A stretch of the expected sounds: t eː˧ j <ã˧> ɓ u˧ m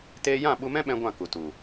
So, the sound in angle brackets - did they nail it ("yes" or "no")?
no